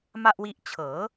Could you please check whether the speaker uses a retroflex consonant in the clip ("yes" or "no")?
no